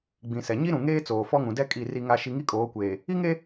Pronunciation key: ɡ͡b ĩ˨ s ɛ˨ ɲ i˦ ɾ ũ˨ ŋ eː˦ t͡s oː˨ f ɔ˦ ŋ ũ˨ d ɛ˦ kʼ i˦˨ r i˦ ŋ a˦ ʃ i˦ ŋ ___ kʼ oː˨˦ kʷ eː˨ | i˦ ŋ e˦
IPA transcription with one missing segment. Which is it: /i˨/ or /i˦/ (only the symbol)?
i˦